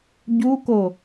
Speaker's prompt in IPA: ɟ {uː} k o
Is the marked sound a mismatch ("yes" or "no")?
yes